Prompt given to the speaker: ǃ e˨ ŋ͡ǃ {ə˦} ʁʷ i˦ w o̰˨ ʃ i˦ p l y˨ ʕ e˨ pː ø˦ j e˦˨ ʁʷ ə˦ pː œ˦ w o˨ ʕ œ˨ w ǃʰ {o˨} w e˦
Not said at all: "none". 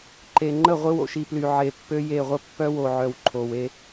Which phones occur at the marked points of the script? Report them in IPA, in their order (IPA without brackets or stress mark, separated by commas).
ə˦˨, o˨